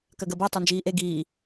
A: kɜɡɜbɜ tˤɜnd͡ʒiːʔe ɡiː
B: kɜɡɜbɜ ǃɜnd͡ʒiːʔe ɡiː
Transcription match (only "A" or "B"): A